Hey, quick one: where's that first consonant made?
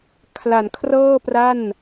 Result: velum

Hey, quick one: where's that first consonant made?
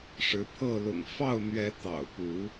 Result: retroflex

